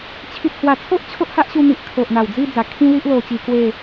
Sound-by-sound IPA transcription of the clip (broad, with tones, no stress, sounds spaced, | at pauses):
t͡ɕʰ i˨ t̚ h w a˨˩ t͡sʰ o˦ ʔ t͡ɕʰ o˦ ʔ h a˦ ʔ ɕ u˧ n̪ i˨ ʔ kʰ o˨ ʔ n̪ a˨˩ w d͡z i˥˧ d͡z a˨˩ kʰ ĩ˦ l i˦ ʔ l o˧ t͡ɕ i˧ k w e˥˧